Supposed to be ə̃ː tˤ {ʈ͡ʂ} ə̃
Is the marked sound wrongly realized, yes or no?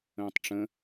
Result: no